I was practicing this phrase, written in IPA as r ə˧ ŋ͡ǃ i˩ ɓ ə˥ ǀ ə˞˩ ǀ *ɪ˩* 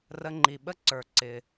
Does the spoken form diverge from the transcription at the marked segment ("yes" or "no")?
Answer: no